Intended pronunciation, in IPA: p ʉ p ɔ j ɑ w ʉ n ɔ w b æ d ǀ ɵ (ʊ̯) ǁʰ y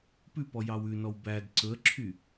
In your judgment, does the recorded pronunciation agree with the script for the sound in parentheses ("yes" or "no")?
no